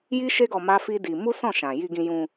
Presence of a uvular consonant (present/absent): absent